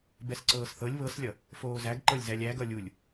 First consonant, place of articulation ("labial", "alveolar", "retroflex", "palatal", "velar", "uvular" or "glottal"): labial